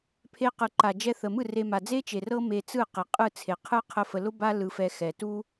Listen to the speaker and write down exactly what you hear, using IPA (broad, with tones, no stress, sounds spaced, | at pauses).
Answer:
pʰ e˧ q ɯ˨ ǃ a˨ d͡ʒ ɛ˧ θ ə˨ m ɯ˦˨ r e˧ m a˨ d͡z e˦ t͡ʃ e˨ r ɤ˦ m e˧ t͡s ɯ˦˨ q e˨ qʼ ɯ˦˨ t͡sʰ e˨ qʰ ɯ˦ qʰ ə˦ f ə˧ l ʊ˦ b a˦ l ɯ˧ f ɛ˧ x ɛ˨ t u˦